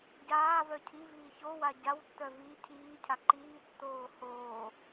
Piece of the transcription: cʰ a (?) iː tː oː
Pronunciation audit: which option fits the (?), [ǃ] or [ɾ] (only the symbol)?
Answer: ǃ